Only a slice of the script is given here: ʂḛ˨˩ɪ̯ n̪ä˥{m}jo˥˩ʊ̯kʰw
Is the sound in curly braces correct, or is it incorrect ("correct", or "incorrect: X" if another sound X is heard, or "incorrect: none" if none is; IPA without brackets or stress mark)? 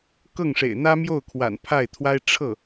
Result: correct